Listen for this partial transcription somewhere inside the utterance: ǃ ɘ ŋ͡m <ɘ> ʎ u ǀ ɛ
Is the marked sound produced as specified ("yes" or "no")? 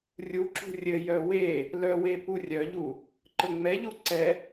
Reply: no